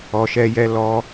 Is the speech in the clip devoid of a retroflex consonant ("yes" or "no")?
yes